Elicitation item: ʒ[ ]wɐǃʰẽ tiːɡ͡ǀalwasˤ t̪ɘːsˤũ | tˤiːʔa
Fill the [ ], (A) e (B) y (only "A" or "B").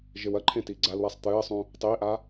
A